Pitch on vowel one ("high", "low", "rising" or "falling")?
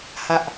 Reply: low